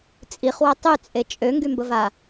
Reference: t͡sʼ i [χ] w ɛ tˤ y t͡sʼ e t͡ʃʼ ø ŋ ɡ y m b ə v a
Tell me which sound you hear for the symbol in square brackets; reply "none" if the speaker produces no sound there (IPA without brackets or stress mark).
χ